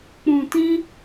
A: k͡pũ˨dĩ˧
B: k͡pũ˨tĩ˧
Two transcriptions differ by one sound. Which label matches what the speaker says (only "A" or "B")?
B